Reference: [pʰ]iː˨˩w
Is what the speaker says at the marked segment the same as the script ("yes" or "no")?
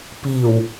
no